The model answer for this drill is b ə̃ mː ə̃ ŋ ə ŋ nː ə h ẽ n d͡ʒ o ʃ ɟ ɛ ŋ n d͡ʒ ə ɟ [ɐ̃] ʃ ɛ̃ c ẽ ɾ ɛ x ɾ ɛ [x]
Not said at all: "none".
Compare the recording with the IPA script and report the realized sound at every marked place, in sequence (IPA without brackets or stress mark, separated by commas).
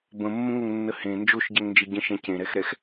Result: ə̃, x